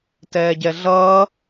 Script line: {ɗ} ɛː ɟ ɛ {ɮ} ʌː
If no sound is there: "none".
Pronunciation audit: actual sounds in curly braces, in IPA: t, ɮ

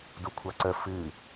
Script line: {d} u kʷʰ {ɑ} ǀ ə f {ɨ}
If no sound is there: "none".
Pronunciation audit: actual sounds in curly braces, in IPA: d, ɑ, ɨ

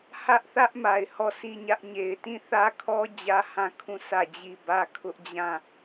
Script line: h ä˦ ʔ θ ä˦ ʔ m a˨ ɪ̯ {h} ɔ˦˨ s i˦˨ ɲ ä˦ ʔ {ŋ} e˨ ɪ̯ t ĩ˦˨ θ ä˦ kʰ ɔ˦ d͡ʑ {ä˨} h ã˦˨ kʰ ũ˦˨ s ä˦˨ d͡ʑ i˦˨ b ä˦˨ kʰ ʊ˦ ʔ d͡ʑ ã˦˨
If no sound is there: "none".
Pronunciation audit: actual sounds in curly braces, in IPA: h, ɲ, ä˦

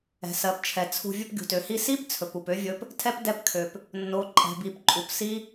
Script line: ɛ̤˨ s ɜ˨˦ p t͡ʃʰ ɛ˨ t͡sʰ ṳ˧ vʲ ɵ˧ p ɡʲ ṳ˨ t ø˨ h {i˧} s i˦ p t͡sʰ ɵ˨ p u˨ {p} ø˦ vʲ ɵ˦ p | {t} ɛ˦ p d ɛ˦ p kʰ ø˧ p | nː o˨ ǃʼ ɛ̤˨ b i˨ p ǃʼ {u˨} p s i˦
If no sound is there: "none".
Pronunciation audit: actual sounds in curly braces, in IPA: i˧, p, tʰ, u˨

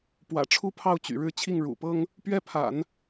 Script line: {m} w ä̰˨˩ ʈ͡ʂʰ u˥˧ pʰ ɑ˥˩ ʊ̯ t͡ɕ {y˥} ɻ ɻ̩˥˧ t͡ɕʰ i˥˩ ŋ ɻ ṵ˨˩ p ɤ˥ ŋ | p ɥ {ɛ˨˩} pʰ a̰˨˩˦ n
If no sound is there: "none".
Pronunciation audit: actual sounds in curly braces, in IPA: p, y̰˨˩, ɛ˥˩

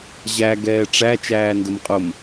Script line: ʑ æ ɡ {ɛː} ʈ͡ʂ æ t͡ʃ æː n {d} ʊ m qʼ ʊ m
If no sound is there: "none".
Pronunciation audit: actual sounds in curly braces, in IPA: ɛː, d

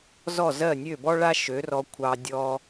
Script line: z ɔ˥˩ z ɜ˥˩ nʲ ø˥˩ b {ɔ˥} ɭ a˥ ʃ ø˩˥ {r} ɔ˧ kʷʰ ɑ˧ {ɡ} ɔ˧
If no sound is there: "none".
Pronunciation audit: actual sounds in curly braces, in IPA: ɔ˥, r, dʲ

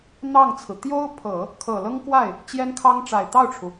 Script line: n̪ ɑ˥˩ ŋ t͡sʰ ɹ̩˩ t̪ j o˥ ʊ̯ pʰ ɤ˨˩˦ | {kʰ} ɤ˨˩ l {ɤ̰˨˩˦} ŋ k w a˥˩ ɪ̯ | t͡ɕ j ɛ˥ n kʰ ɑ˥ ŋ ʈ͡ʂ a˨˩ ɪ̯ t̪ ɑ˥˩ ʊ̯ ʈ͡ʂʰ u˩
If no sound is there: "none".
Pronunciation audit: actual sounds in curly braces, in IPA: kʰ, ɤ˥

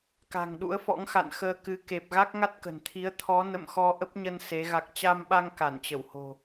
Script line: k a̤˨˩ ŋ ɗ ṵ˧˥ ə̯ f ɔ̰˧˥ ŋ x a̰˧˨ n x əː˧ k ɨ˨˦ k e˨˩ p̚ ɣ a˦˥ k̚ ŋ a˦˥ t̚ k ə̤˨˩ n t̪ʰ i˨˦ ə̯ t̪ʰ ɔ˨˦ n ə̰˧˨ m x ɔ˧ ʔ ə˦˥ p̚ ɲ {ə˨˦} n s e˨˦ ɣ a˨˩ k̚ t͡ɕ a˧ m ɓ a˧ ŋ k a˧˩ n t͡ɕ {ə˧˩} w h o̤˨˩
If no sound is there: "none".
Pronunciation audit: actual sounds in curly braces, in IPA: ə˧, ə˧˩

